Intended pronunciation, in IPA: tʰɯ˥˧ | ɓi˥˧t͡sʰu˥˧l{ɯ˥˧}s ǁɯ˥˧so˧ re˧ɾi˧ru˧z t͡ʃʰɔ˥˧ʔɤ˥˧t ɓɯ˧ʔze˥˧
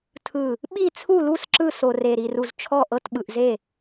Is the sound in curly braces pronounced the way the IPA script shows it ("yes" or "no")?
no